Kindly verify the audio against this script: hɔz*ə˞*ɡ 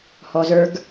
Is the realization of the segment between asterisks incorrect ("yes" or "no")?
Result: no